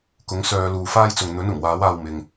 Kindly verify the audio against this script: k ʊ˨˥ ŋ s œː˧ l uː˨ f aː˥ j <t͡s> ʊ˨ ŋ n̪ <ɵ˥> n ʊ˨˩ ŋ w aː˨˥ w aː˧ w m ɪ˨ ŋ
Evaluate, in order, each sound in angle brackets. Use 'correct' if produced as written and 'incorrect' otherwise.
correct, incorrect

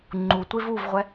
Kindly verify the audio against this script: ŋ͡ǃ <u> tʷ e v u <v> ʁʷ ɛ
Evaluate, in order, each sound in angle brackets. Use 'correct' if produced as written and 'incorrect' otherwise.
correct, correct

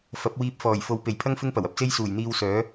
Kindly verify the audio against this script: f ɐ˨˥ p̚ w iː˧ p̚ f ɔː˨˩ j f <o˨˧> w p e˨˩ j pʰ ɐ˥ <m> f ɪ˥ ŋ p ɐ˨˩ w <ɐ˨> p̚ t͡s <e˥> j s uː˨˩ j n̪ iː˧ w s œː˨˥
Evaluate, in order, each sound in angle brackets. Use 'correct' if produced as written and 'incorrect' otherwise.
correct, incorrect, correct, correct

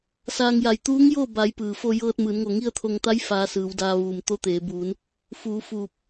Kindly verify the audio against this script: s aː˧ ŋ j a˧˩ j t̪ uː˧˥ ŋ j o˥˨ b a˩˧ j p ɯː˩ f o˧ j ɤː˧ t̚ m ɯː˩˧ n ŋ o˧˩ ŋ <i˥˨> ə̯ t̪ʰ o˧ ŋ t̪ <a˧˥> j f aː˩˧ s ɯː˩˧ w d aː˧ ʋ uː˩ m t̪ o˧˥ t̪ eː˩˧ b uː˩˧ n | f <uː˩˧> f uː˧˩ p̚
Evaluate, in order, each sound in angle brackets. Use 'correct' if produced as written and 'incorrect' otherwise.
correct, correct, correct

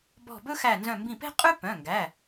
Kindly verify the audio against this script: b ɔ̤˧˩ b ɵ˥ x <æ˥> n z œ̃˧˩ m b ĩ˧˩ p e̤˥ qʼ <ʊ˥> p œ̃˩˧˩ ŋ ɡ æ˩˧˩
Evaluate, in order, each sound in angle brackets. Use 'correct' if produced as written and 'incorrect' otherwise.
incorrect, incorrect

